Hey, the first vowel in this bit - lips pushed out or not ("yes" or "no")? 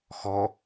yes